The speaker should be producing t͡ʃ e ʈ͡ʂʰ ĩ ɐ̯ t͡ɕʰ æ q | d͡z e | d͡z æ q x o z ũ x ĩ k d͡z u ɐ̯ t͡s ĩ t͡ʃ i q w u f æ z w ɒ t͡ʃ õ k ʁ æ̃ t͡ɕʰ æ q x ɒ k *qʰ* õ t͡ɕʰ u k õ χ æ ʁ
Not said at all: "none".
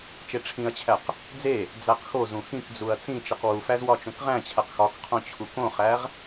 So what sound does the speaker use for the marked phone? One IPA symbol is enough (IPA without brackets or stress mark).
qʰ